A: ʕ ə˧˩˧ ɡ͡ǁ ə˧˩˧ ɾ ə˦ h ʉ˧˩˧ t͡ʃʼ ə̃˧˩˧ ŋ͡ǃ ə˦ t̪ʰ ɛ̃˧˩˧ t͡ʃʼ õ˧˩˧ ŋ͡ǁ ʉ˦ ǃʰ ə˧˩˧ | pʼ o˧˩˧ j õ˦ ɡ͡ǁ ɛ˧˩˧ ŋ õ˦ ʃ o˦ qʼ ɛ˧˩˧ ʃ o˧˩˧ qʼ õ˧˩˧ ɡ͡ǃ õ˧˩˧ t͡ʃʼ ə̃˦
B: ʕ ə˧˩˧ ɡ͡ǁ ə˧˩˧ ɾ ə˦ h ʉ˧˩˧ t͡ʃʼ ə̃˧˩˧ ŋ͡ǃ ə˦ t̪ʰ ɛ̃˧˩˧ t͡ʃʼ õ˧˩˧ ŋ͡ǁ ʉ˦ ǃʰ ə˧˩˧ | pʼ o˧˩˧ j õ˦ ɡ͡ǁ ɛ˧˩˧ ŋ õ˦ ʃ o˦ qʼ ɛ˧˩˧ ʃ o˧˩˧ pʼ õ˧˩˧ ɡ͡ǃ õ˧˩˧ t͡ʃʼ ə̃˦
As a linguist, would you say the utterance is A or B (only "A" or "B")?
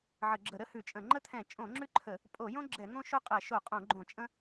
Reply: A